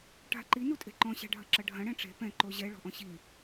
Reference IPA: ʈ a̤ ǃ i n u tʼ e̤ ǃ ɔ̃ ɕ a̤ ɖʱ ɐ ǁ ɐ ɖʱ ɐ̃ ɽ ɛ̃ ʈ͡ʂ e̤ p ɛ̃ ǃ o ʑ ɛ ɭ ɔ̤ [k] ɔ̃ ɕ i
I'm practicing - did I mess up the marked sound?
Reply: yes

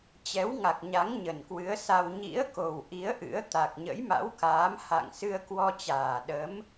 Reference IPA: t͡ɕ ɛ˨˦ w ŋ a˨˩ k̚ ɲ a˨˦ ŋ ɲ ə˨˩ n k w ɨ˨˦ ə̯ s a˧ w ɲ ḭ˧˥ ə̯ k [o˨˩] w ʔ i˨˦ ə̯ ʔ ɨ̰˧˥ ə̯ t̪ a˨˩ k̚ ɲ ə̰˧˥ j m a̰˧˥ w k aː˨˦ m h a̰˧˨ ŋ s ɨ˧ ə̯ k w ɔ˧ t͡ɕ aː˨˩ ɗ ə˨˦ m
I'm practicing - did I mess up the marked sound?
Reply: no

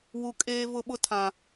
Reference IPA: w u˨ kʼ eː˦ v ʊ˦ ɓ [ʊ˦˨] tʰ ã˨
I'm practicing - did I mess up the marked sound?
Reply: yes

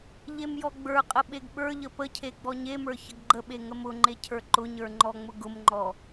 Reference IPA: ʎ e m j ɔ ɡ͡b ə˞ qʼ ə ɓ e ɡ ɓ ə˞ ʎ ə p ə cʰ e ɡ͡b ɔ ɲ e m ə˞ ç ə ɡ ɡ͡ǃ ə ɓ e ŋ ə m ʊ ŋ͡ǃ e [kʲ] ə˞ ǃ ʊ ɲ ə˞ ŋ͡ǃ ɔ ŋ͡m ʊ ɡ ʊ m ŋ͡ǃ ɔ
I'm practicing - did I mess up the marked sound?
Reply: yes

